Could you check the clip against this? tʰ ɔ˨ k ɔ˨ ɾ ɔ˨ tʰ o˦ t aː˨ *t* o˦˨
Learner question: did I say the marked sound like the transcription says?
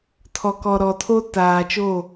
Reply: no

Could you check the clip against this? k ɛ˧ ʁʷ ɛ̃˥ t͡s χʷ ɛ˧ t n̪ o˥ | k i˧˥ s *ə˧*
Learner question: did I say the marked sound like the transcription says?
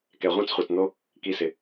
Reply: no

